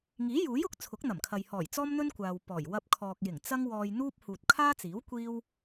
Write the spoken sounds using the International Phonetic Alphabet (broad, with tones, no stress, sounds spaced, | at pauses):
ŋ iː˨˥ j uː˨˥ j ʊ˨˥ k̚ t͡sʰ ʊ˨˥ k̚ n̪ ɐ˨˩ m kʰ ɐ˨ j h ɔː˨˩ j t͡s ɔː˥ m n̪ ɵ˥ n kʷ aː˨ w p ɔː˨˩ j w ɐ˧ p̚ kʰ ɔː˨ k̚ j ɪ˨˩ ŋ t͡s ɐ˥ ŋ w ɔː˧ j n̪ uː˥ p̚ h uː˨ t̚ kʰ aː˥ t͡s iː˨˥ w kʷ iː˥ w